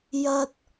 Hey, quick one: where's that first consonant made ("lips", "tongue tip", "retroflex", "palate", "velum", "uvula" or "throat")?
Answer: palate